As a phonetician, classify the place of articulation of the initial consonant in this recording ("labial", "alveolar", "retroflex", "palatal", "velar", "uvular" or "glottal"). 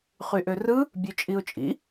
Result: uvular